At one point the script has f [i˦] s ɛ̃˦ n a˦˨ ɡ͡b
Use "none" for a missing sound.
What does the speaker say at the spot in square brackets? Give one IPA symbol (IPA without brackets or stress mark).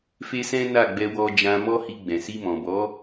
e˦